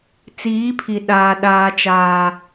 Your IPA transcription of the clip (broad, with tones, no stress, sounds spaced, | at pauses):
t͡s iː˨˦ pʰ i˨ ɗ aː˨ ɗ aː˨ t͡ʃ aː˨